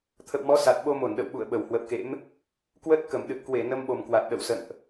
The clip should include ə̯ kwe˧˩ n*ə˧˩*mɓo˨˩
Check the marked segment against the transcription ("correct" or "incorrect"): incorrect